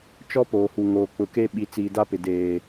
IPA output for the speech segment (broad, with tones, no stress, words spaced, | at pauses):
t͡ʃɔ˦poː˨hu˨ ŋoː˨k͡pʊ˨ke˦ ɓi˨t͡siː˨da˦pɪ˨ deː˨